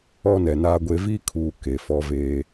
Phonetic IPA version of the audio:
ɔ˦ n ɛ˨ n aː˦ ɡʷ e˦ v i˦ kʰ uː˨ k e˨ f ɔ˦ v eː˦

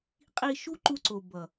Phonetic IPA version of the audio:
qʼ i˧ ʃ u˦ ǃ u˧ ǀ o˨ b ʌ˨

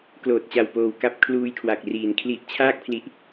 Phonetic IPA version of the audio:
k l oː˨˩ t̚ t͡ɕ a˨˩ w p oː˨˩ w k a˦˥ p̚ kʰ l uː˧ j kʰ w a˨˩ k̚ r iː˩˦ n kʰ l i˦˥ ʔ t͡ɕʰ aː˥˩ k̚ pʰ l i˦˥ ʔ

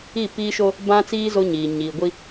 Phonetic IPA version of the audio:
i˦˨ p iː˦ ʃ o˦ | b ã˦ t͡s iː˦ z o˦ ɲ iː˨ ɲ iː˨ ɡʷ i˦

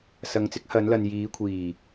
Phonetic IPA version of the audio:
s ɐ˨˧ ŋ t͡s ɪ˨˥ k̚ h ɐ˨˧ n l ɐ˨ n j iː˨˧ kʷʰ iː˨˩

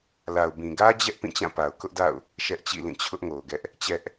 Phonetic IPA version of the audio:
l a˨ ʊ̯ b ĩ˨ ɡ ä˦ d͡ʑ ɛ˦ ʔ p ĩ˦˨ t͡ɕ ã˦˨ p a˨ ʊ̯ k ʊ˦ ʔ d a̰˦˨ ʊ̯ | ʃ ɛ˦ ʔ t͡ɕ ḭ˦˨ l ĩ˦˨ t͡ɕʰ ʊ˦ ʔ ŋ o˨ ʊ̯ ɡ ɛ˦ ʔ | t͡ɕ ɛ˦ ʔ

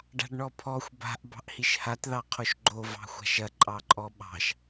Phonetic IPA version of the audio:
ɖ a̤ ɖ ɳ ɔ pʰ ɔ xʷ b a̤ ʔ b ɑ̤ ʔ h i ʃ h a t ð ɑ qʰ o ʃ ɡ͡ǃ o v ɑ̤ xʷ a̤ ʃ ɐ ǃʼ ɑ ǃʼ ɔ ɓ ɑ̤ ʃ

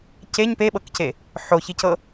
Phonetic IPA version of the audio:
c e ɲ p e ɓ ɤ k c e | ħ o ç i c ɤ

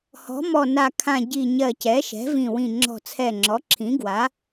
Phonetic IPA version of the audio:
h ɔ̤˩˥ m ɔ˧˩ n a˧˩ kʰ ã˧˩ ɟ i˧˩ ɲ ɜ˧˩ c ɛ˩˥ ʃ ɛ̤˩˥ v ĩ˧˩ w ĩ˧˩ ŋ͡ǁ ɔ̤˧˩ t͡sʰ ɛ˧˩ ŋ͡ǁ ɔ˩˥ ǁʰ ĩ˩˥ ɡ w a˩˥

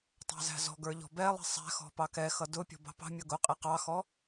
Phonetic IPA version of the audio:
tˤ ɑ̤ z æ̤ z ɔ̤ ɡ ə˞ ʎ ɔ̤ b ɛ lˠ i̤ sˤ æ̤ x ɔ̤ p ɑ k ɛ x ʌ d ʊ pʲ ɔ̤ b ɑ̤ p ɑ̤ mʲ ʌ ɡ ʊ qʼ i q ɑ x ɔ

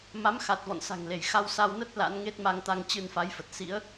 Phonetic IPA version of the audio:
m a˨˦ m x a˨˩ t̚ v ɔ̰˧˨ n s a̤˨˩ ŋ l e˧˩ j x a˧ w s a˧ w n ə˦˥ t̚ l a̰˧˥ n ŋ e˦˥ t̚ m a˧ ŋ t̪ a˧ ŋ t͡ɕ ɨ˧ n f a˨˦ j f ə˨˩ t̚ s ḭ˧˥ ə̯

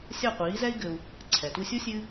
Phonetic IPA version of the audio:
sʲ a˥˩ qʷ iː˩˥ z ɛ˥ i̯ ɡ ɘ˧ u̯ | ǀʰ ɛ˩ t u˧ sʲ o˥ sʲ ɨː˥

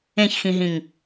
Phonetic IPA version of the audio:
ẽ ç x ĩ ɦ ĩ ŋ

